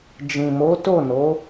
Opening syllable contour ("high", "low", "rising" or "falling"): low